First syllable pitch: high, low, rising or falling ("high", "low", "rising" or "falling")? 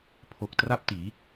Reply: low